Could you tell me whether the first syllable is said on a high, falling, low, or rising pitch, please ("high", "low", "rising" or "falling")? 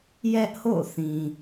high